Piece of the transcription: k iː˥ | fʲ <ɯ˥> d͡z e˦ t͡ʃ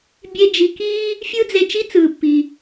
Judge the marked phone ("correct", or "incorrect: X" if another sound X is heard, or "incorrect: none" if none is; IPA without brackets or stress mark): correct